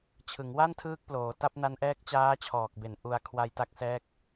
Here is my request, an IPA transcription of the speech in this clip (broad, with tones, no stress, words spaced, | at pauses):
t͡ɕʰɯ˩˦ŋwa˥˩ntʰɯː˦˥k̚ploː˩˦ ta˦˥p̚na˦˥nʔɛː˦˥k̚ t͡ɕaː˦˥t͡ɕʰɔː˨˩k̚be˩˦n ʔu˧a̯kʰwa˧jta˦˥k̚sɛː˦˥k̚